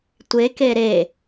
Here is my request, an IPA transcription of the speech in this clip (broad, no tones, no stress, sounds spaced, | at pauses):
tʷ e k e ɾ e